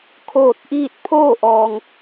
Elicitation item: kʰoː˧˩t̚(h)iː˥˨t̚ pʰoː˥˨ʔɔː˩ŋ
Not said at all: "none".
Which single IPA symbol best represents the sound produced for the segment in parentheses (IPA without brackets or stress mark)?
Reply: ʔ